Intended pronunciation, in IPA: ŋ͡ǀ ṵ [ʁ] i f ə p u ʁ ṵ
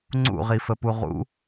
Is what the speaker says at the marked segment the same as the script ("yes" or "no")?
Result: yes